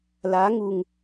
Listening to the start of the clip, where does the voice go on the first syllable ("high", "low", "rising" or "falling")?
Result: rising